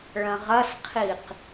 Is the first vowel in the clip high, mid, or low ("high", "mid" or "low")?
low